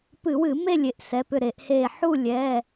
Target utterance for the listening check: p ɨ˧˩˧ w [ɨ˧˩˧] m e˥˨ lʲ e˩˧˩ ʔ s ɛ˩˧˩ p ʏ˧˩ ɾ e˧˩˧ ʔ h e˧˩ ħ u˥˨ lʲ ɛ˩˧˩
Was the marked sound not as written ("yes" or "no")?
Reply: no